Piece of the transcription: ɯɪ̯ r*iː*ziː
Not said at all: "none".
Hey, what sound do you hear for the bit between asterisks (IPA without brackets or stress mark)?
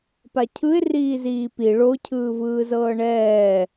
iː